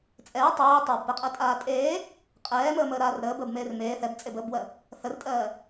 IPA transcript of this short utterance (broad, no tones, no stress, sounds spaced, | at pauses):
t͡sʼ ɛː tˤ ɜː tˤ əː b p ɛ qʼ ɜ tʼ aː tʼ eː | qʼ ɛː m əː m əː ɾ aː r ɾ əː b əː b m eː r m eː θ ɛ b t͡sʼ e b əː b w ɜ | θ ə r tʼ ɜː